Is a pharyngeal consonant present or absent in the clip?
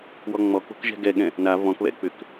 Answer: absent